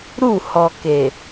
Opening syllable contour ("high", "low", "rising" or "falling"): falling